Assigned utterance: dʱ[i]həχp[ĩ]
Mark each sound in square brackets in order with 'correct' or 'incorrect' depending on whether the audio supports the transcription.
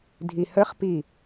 correct, incorrect

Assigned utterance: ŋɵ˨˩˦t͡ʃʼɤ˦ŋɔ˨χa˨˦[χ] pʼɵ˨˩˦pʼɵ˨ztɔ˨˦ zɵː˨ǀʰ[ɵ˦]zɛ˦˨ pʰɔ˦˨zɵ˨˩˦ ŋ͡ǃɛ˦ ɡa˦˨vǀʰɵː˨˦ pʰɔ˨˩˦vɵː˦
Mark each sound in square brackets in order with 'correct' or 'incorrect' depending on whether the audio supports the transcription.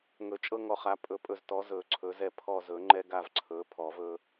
incorrect, incorrect

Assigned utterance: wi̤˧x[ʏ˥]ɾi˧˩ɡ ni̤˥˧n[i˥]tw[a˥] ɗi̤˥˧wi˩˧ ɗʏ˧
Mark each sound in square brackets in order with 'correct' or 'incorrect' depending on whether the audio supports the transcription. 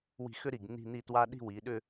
correct, incorrect, correct

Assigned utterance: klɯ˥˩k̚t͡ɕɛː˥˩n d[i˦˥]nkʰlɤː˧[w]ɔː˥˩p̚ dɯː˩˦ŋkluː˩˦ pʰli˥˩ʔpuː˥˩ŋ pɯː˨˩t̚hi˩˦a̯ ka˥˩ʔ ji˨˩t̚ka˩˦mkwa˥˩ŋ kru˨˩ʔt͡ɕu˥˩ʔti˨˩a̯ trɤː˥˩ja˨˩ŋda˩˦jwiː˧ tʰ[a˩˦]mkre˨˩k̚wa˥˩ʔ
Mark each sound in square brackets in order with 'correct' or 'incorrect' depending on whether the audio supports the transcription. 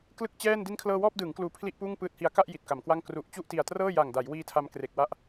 correct, correct, incorrect

